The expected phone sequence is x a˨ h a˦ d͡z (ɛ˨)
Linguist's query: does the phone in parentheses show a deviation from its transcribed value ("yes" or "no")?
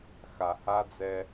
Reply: yes